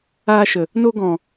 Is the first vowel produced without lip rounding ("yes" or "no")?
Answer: yes